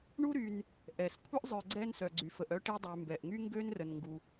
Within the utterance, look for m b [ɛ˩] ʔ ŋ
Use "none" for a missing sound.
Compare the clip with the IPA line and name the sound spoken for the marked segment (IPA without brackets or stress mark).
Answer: ɛ˩